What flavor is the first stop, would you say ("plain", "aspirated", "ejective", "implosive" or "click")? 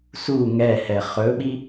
implosive